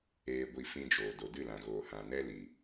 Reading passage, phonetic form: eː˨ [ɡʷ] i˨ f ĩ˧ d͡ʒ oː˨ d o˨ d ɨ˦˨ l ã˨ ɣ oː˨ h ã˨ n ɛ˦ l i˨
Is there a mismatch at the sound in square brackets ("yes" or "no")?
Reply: no